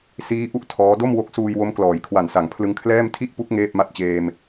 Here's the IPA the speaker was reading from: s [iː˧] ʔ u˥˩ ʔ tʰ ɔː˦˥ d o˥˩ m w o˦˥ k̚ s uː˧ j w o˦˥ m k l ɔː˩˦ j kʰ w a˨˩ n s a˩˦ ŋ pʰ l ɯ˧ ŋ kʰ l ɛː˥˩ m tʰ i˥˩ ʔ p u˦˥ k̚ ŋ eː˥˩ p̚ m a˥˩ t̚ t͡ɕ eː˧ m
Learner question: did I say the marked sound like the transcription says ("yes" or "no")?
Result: no